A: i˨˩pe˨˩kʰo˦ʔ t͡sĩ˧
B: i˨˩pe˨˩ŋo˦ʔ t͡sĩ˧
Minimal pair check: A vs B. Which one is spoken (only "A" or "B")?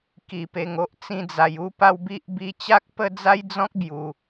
B